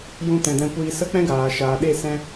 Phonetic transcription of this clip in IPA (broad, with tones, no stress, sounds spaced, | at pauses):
j ũ˧ t ɛ̃˨ d ɛ̃˧ kʷ iː˧ s ə˦ k͡p ɛ̃˦ ɡ aː˨ ʃ aː˨ ɗ e˦˨ s ɛ̃˦